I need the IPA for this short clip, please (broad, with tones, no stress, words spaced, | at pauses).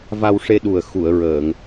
va˧wʂe˧ɗu˨˩ə̯ xu˨˩˨ə̯ɹəː˨˩˨ŋ